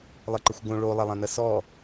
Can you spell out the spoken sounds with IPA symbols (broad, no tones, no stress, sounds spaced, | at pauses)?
lˠ ə ǃ ə xʷ ɡ õ ɭ o lˠ ɐ lˠ ɐ̃ n ɐ s ɔ